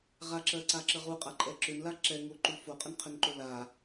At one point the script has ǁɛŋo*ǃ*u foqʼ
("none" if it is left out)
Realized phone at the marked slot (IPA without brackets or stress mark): ǃ